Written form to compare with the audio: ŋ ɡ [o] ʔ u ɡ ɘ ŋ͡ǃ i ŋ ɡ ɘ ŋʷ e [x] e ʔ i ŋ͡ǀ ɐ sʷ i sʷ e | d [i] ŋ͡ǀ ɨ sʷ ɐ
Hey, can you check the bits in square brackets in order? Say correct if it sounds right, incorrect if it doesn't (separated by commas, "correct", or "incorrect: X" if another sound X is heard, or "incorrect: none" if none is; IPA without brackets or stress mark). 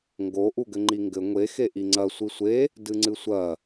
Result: correct, correct, incorrect: ɨ